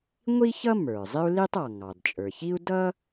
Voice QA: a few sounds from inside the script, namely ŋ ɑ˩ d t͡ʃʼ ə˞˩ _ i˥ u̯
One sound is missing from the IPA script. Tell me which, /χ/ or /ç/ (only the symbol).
ç